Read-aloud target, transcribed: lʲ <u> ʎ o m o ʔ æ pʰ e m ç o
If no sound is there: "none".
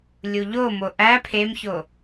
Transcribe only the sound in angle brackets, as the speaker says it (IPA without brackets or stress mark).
u